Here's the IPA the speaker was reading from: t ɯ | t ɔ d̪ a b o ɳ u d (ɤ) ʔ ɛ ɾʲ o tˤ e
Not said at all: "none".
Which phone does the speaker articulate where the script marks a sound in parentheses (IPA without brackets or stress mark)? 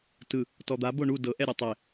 ɤ